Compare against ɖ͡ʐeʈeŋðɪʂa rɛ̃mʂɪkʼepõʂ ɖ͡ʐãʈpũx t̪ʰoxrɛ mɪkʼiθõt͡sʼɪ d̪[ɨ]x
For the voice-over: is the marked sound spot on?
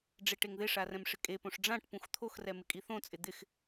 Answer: no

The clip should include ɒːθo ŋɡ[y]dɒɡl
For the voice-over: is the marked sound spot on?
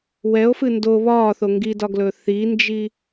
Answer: no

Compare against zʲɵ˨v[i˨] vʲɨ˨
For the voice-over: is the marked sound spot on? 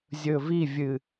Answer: no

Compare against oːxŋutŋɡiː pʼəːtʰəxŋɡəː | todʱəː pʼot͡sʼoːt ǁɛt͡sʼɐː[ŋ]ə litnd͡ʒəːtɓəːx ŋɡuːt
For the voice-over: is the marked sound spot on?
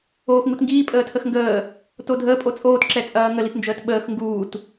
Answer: yes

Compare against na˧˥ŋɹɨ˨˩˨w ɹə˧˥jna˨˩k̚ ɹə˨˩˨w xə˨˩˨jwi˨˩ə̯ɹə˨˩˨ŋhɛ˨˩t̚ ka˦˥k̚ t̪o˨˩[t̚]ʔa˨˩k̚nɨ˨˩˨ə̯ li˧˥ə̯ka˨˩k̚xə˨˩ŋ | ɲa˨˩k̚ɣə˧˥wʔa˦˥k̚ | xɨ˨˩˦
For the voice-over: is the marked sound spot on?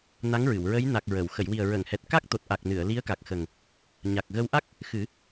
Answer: yes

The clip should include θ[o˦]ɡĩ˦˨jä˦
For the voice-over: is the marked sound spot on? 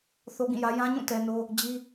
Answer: yes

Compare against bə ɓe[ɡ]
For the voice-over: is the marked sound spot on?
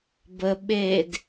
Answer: no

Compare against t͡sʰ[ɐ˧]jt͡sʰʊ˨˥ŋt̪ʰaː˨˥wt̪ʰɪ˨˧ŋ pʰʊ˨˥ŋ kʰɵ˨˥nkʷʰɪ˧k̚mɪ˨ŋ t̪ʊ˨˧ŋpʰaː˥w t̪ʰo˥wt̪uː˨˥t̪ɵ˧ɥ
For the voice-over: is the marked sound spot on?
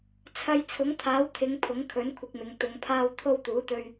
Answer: yes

